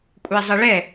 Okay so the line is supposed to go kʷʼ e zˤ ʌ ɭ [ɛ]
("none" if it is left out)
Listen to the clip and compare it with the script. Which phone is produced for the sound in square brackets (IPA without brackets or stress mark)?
ɛ